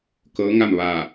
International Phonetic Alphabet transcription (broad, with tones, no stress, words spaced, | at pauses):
kɤː˧˥ŋa˥˨mʋa˧˩